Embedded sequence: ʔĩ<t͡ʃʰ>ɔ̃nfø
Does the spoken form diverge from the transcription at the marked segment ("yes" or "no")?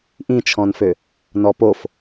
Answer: no